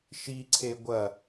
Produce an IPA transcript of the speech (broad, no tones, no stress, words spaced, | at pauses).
ʃiǀʰe ɡʷɐ